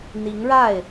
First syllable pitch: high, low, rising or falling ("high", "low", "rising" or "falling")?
rising